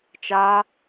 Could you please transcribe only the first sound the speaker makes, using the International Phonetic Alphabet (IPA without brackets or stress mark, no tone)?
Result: t͡ʃ